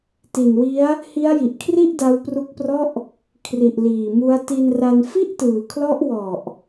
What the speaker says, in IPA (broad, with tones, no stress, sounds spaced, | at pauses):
t i˨˩ n w i˦˥ a̯ | h i˦˥ a̯ j i˨˩ ʔ kʰ r i˥˩ ʔ d a˦˥ w p r u˦˥ k̚ p r ɔ˥˩ ʔ | kʰ r i˨˩ ʔ l iː˨˩ m u˦˥ a̯ t i˧ n r a˧ n f i˥˩ ʔ t ɯː˨˩ kʰ l ɔ˦˥ ʔ w ɔ˨˩ ʔ